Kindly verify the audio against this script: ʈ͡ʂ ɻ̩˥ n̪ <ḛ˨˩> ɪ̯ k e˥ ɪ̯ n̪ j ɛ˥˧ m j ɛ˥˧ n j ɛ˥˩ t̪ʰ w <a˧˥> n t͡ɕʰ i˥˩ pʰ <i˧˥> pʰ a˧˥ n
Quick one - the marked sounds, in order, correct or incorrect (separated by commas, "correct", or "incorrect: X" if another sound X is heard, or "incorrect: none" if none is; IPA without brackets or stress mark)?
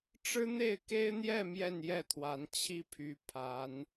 incorrect: e˥˩, correct, incorrect: y˧˥